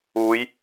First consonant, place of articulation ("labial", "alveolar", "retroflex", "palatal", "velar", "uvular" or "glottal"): palatal